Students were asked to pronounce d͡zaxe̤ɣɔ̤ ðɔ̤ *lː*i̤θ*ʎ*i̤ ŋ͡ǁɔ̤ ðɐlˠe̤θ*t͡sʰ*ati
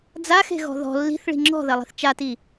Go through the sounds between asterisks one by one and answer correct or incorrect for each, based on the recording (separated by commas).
correct, incorrect, incorrect